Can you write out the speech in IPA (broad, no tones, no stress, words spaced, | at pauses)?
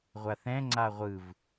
ʁʷaθɛ̃ ŋ͡ǀaʁʷɯv